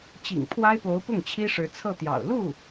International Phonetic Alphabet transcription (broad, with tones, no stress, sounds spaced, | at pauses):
t͡ɕ ḭ˨˩ ŋ pʰ w a˥ ɪ̯ p o˧˥ ʊ̯ p ʊ˥˩ ŋ t͡ɕʰ i˥ ʂ ɻ̩˧˥ t͡sʰ ɤ˥˩ t̪ j ɑ̰˨˩ ʊ̯ l u˥˩